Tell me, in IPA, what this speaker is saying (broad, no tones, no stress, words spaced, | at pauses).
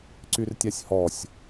ǀyrtʲasʲhɔsʲ